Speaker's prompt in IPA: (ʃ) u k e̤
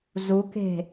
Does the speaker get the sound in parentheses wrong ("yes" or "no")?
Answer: yes